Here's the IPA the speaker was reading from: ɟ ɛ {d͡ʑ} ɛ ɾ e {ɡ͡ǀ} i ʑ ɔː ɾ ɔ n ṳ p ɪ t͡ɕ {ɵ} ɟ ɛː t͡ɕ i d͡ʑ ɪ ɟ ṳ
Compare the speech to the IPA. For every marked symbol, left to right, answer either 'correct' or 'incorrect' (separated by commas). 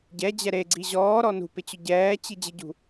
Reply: correct, correct, incorrect